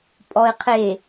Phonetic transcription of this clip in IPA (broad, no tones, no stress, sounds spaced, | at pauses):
pʼ ɔ ɪ̯ qʰ e